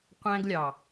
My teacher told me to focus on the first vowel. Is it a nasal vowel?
yes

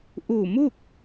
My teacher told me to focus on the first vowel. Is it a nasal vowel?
no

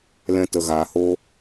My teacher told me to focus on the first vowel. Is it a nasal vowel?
yes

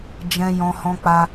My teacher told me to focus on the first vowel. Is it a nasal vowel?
yes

